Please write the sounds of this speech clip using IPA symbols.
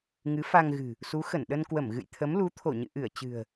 ŋ ɨ˨˦ f a˧ ŋ ɣ ɨ̤˨˩ | s u˨˦ x ə˧˩ n ɗ ə˧ n k w ə˧˩ m ɣ ɨ̰˧˨ j t̪ʰ ə˨˦ m l u˨˦ t̪ʰ o˧˩ ɲ ɨ̰˧˨ ʔ ɨ˧˩ ə̯ t͡ɕ ɨ̤˨˩ ə̯

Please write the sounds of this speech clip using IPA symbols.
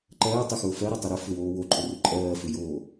ǃ ɜː tˤ ʏ x ʊː f ɜ ɾ o tˤ ʊ ɾ ʊ f ʏ w oː w o ǃʼ ʊ r ʏ ǃʼ ɜː f ʏ j oː

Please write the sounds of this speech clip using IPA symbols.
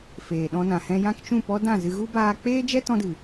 f eː˨ ɗ ɔ̃˧ n ã˨ h ɛ̃˧ j ã˦ k t͡ʃ ũ˦˨ p ɔ˦ d ã˦˨ z ɨ˧ ɣ u˦ b aː˧ k͡p eː˦ d͡ʒ ɛ˦ t ɔ̃˧ d ɨ˨

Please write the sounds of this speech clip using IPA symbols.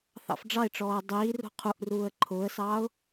θ ɑ̰ f ɖ͡ʐ ɑ ɪ̯ ʈ͡ʂ ɔː ə̯ dˤ iː r ṳ qʰ u ʔ r uː ə̯ ǃʰ ʊː ə̯ s ɑː ʊ̯

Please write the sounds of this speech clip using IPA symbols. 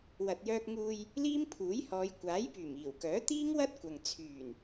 w ɐ˨ t̚ j œː˧ k̚ ŋ uː˧ j | l iː˥ m pʰ uː˨˥ j h ɔː˨˧ j kʷ aː˨˥ j p yː˨˩ m iː˨˩ w k œː˨˥ t̪ iː˥ ŋ w ɐ˥ t̚ kʷ ɐ˨ ŋ t͡sʰ yː˨˩ n

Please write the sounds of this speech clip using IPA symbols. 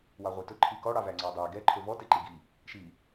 w ɑ ʁʷ e t ɵ ǃʰ i k ɔ ɽ ɑ v æ ŋ͡ǀ ɑ dˤ e ɡ ɛ ǃʰ ɵ v ɔ t e ǃ i ɡ i | ʃ i

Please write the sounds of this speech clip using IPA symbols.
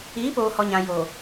iː˨˦ p oː˨ h ɔ˨ ɲ ã˨ j o˨

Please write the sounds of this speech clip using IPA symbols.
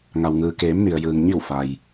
ŋ a˩ w ŋ ɯː˩ k eː˩˧ m n i˩ ə̯ j ɯː˩ ŋ ɲ i˧˩ w f a˩ j

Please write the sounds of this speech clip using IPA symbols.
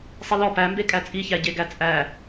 sˤ i l ɔ p æ m b e kʼ æ t͡sʼ i ç æ ɟ e ɡ æ t͡sʼ æ

